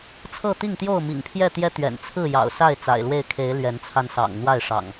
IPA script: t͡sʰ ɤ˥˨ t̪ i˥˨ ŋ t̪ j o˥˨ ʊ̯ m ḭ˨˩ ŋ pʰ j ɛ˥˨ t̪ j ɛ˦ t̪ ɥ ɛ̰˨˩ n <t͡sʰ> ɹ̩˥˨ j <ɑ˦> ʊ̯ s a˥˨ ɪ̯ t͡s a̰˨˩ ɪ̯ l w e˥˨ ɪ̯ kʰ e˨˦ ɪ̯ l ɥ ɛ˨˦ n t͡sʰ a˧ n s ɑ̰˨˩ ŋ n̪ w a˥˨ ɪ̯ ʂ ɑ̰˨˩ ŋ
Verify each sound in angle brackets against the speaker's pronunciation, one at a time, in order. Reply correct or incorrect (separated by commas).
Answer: correct, incorrect